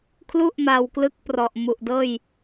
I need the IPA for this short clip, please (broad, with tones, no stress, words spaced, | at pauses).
kʰlu˥˩ʔma˧wklɯ˦˥k̚ prɔ˨˩ʔ mu˨˩ʔdɤː˥˩j